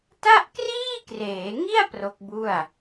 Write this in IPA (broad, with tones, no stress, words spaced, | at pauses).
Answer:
ta˥˩ʔkriː˥˩kreː˩˦ŋi˥˩a̯ pro˦˥k̚bu˥˩a̯